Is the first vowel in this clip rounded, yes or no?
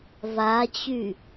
no